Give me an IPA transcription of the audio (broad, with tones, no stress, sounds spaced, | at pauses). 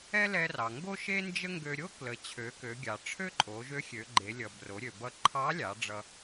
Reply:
ɛ˥ l ɛ˧ r ɑ˩ ŋ ɡ o˥ ʃ e˥ n d͡ʒ ə˥ ŋ ɡ ø˧ ɾʲ o˥ k l ə˩˧ t͡ɕʰ ø˩˧ k ø˩˧ ɡʲ ɑ˩ ʈ͡ʂʰ ø˥ ǃʼ o˩˧ ʒ ø˧˥ xʲ ø˩˧ ɡ͡ǃ e˩˧ lʲ ʌ˩ b r o˩˧ ɾʲ ø˩ b ʌ˧ ǃʰ ɑ˧˥ lʲ ɑ˩˧ ɖ͡ʐ ʌ˧